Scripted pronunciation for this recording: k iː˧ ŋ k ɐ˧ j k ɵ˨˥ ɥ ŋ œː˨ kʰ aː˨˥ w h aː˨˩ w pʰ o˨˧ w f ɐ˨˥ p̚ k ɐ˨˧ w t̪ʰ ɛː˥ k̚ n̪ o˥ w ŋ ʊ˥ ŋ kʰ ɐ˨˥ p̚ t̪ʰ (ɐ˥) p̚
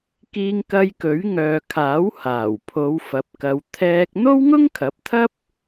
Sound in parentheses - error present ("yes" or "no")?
no